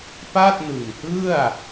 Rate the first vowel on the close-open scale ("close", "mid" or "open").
open